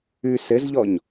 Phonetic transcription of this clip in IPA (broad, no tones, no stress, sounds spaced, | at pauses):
ʉ s ɘ z ʎ ɔ ɲ